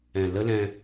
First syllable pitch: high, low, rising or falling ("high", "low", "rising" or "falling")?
low